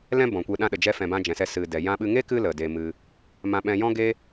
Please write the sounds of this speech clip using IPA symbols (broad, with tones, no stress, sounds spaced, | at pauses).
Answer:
l ɛ̃˦ b ɔ̃˨ kʷ e˧ ɗ ã˧ ɗ ə˨ d͡ʒ ɛ˧ f ɛ̃˨ b ã˧ d͡ʒ ɛ̃˨ s ɛ˧ s ɨ˨ d ɛ˨ j ã˧ ɓ ɨ˧ ŋ e˦ k ɨ˦ l ə˨ d e˧ m ɨ˧ | m ã˧ ɓ ɛ̃˧ j ɔ̃˦ ɡ e˦